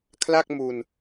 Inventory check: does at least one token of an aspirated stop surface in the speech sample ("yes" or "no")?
yes